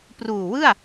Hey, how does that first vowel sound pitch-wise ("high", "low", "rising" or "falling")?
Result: low